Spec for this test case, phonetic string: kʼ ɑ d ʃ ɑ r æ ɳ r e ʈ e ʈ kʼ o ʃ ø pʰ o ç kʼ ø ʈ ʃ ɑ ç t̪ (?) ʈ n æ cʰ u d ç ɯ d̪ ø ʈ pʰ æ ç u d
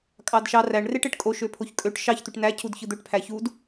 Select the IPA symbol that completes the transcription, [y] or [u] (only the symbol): y